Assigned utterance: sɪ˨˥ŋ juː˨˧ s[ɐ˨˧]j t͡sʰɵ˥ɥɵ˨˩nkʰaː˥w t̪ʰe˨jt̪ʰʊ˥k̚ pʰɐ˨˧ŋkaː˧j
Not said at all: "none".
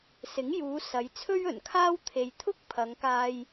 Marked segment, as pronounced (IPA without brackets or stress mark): ɐ˨˧